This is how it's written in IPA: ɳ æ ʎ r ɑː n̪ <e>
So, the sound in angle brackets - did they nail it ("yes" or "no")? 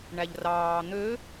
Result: no